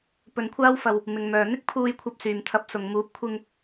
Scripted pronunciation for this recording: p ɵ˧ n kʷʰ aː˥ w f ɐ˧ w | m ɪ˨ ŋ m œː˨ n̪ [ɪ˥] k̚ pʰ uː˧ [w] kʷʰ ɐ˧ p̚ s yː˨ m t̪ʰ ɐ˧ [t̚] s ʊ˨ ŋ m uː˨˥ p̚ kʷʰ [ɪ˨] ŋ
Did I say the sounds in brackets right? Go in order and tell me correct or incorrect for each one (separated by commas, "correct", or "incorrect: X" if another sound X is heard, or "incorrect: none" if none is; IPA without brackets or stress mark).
correct, incorrect: j, incorrect: p̚, incorrect: ɪ˧